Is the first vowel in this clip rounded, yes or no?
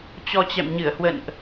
yes